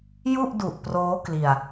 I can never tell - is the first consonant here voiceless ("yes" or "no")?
no